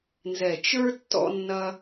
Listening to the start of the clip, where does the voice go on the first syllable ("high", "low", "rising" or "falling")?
low